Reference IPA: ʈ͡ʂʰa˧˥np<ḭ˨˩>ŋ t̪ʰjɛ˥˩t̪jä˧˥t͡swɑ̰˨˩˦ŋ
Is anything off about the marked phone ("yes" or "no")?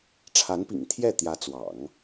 no